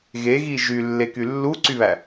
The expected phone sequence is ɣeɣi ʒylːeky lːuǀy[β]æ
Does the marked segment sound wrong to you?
no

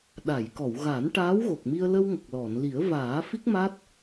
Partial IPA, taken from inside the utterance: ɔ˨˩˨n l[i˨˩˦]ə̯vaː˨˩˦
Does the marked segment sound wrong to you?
no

